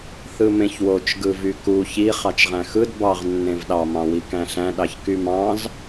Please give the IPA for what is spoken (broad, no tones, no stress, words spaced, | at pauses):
θɯmẽçwot͡ʃ ɡɯvyku çi χɑt͡ʃʁæ̃xɯd bɑʁ nːẽvɗɑ mɑ̃wikæ̃ɬæ̃ ɗɑçkymɑ̃z